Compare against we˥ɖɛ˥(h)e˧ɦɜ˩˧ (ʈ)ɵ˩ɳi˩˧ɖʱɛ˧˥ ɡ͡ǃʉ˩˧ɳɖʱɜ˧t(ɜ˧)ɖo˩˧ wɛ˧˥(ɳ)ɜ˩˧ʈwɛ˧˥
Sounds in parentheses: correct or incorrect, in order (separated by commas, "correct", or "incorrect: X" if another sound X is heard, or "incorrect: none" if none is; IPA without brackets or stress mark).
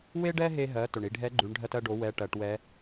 incorrect: ɦ, incorrect: t, correct, incorrect: ʈ